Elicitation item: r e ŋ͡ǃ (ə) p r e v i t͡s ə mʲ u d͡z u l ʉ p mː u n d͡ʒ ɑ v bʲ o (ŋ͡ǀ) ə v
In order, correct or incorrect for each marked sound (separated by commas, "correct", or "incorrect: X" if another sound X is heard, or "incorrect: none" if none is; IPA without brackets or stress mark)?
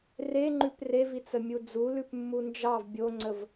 incorrect: ʉ, correct